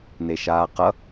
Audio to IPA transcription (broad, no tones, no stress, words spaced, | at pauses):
neʃaːqʌ